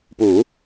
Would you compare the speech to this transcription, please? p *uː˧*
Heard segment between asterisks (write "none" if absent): uː˩˦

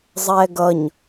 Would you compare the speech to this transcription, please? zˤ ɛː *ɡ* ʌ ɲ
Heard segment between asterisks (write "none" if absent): ɡ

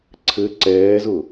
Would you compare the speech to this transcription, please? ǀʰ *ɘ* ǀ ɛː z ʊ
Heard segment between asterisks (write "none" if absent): ɘ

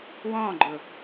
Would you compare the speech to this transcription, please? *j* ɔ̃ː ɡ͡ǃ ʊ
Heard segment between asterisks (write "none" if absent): w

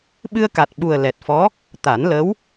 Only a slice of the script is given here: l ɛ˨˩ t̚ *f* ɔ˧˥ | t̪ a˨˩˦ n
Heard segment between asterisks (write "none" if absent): f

